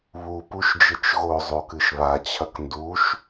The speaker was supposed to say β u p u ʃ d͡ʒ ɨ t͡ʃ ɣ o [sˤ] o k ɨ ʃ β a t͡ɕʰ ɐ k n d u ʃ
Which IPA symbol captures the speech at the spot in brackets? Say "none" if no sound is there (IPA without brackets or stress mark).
zˤ